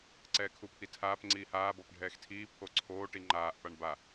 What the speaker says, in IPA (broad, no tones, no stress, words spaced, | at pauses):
ǀɛːkʰupʰitʰaːp ŋ͡ǀiːhaː bɔpɖʱɛːxtʰiː pʰoǀʰoː ʈiŋ͡ǃaːʔ paɳba